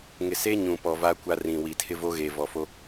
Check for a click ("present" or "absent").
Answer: absent